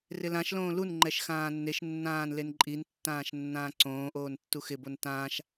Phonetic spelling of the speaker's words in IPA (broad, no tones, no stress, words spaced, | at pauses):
rɪlãʃlõː lunŋ͡ǃɛʃ xãːnːeʃnːãːn lenǃʼintːãːʃ nːãːǀõːʔoːn tːuxɪbon tãːʃ